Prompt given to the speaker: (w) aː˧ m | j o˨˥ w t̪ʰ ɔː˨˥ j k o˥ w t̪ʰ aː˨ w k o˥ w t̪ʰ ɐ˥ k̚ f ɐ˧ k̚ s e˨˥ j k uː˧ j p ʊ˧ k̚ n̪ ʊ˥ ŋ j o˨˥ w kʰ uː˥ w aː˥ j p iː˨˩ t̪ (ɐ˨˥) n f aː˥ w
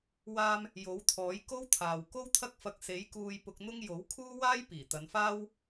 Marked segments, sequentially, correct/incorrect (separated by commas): correct, incorrect